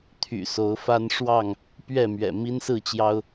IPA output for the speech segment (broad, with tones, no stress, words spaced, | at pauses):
t̪ʰy̰˨˩so˨˦ʊ̯fa˦n ʂwɑ˥˨ŋ | pɥɛ˥˨mɥɛ̰˨˩ mi˦nsɹ̩˥˨t͡ɕjɑ˦ʊ̯